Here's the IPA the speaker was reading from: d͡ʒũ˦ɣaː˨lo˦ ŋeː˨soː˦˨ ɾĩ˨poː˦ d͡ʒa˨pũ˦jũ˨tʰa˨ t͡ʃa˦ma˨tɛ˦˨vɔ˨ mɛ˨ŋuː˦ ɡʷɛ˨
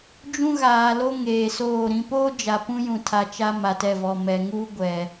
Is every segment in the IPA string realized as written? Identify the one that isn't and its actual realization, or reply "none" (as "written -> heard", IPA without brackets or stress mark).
none